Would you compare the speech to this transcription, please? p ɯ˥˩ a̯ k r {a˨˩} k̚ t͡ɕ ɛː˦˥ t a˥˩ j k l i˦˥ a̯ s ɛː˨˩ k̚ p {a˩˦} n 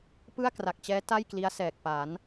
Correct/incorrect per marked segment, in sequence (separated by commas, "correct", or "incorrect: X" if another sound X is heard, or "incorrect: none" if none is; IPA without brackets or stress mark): correct, correct